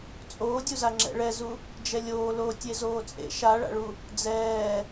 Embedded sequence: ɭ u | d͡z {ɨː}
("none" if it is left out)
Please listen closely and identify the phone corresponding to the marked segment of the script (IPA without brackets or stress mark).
ɛː